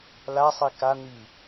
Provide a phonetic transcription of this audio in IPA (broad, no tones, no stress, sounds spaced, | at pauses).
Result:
l a sˤ e k a n̪ i